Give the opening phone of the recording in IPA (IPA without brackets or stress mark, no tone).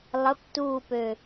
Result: lˠ